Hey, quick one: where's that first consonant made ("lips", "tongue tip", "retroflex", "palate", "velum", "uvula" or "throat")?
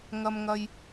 velum